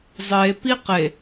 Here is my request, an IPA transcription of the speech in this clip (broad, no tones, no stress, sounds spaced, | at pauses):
zˤ e p i q e